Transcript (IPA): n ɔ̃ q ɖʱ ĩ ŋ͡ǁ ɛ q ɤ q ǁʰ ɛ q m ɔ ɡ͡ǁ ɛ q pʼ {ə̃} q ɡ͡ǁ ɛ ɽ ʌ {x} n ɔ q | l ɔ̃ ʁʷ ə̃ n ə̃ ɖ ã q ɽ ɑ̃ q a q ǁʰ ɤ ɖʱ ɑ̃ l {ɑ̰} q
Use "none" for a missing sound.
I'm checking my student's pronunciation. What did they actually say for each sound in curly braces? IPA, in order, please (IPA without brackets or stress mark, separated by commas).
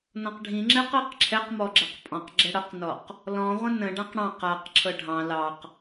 ɔ̃, q, ɑ